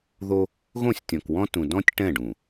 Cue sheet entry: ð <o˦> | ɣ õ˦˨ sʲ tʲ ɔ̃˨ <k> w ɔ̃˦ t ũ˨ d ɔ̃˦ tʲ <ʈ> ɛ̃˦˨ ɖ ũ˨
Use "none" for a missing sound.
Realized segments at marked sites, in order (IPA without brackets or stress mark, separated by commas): o˦, k, ʈ